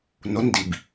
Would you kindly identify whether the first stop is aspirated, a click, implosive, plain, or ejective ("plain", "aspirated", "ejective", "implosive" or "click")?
plain